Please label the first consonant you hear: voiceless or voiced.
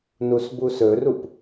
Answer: voiced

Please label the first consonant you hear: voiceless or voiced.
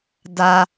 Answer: voiced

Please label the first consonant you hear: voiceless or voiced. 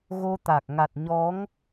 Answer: voiced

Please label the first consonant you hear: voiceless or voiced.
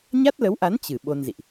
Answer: voiced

